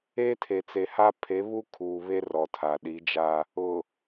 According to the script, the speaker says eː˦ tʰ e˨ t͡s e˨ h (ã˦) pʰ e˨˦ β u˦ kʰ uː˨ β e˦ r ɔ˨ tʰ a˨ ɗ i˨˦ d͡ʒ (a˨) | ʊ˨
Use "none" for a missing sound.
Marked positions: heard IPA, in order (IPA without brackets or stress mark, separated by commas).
a˦, a˦